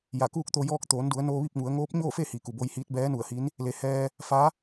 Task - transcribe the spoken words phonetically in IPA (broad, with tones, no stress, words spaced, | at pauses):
ja˧˩kuː˥˨k̚t̪o˧ jɔː˧k̚t̪oː˩˧ndu˩˧ə̯ noː˧ʋi˥˨p̚ŋu˩˧ə̯ ŋoː˧˥p̚ɲoː˥˨fe˥˨ hiː˩ku˩bo˧jhiː˧˥t̚ bɛː˧˥nu˧˩ə̯hi˧˥n | le˩hɛː˧ | fa˧˥